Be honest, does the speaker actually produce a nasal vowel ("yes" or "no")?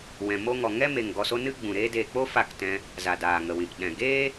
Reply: yes